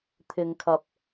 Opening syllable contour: low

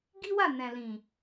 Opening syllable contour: high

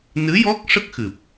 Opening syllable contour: rising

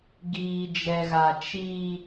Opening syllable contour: low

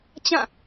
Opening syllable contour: falling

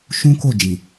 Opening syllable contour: high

